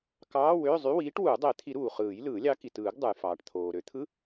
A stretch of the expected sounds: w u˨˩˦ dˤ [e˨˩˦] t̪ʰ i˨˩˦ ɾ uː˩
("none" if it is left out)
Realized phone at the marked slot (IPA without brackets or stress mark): e˨˩˦